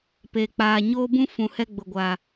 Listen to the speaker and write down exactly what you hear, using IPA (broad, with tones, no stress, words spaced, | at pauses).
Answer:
pe˨k͡paː˨ ɲoː˦bũ˦ fũ˨ hɛ˦ɡ͡bʊ˨ɡʷaː˨